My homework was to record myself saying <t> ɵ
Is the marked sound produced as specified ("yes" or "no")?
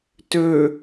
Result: yes